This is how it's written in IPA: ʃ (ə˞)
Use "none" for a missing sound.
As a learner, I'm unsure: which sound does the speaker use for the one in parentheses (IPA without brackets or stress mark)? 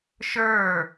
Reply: ə˞